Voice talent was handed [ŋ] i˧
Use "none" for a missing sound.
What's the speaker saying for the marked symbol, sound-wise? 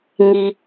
ŋ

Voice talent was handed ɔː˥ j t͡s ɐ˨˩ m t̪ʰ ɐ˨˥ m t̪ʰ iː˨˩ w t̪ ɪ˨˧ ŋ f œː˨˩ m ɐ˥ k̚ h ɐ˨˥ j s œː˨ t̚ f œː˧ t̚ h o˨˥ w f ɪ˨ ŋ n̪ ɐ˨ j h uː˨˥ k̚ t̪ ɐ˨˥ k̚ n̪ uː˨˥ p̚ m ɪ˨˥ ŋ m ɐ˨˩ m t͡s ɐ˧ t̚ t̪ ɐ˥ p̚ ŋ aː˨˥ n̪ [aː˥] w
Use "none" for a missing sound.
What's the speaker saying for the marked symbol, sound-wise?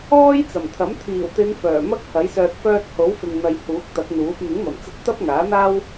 aː˥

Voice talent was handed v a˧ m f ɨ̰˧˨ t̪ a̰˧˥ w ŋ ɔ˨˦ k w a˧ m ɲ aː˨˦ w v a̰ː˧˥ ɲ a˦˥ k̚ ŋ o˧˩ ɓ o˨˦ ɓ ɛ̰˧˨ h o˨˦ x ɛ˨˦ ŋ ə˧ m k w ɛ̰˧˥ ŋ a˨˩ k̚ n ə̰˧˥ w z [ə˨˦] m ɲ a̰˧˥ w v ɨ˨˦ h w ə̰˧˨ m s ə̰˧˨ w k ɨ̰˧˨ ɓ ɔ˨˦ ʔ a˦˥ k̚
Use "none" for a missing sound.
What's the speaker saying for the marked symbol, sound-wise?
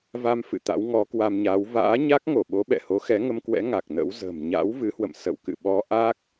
ə̤˨˩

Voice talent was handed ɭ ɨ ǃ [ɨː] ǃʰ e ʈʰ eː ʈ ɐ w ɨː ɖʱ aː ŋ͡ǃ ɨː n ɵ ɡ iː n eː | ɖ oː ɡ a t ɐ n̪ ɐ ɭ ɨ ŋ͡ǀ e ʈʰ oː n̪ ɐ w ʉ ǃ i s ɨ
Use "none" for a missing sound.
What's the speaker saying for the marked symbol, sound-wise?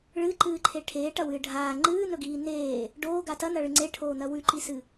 ɨː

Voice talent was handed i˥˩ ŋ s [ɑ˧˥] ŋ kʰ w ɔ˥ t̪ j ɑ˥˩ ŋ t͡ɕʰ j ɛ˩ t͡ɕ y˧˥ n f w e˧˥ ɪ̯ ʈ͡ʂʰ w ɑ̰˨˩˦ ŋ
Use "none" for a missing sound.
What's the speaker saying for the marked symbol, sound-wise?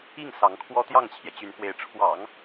ɑ˧˥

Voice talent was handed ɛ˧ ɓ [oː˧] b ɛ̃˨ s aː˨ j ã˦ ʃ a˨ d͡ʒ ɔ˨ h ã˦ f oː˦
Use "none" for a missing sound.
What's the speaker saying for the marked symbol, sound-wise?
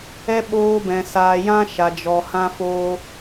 oː˧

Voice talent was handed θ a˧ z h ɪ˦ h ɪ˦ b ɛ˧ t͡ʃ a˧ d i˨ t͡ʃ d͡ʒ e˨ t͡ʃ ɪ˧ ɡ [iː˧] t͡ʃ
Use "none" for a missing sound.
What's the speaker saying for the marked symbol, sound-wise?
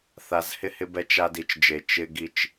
i˧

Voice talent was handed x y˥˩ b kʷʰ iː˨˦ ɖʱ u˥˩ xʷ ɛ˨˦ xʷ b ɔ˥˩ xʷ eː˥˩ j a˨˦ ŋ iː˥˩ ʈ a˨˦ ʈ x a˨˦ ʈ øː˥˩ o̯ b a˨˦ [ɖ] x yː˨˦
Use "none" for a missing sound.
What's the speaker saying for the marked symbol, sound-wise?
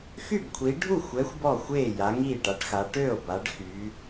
ɖ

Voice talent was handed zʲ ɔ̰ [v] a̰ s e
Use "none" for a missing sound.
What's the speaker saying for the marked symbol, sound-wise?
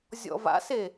v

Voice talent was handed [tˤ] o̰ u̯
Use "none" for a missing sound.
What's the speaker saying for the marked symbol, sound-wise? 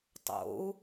tˤ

